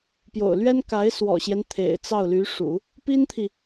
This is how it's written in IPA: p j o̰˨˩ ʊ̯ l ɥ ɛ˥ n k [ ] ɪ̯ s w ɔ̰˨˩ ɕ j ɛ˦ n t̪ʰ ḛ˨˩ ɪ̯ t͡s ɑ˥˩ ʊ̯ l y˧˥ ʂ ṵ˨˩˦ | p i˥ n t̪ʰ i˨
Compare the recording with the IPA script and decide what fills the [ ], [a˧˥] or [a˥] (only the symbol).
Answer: a˧˥